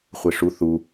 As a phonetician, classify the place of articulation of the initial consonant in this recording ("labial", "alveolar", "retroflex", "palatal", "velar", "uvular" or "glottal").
uvular